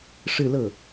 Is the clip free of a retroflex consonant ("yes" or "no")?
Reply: no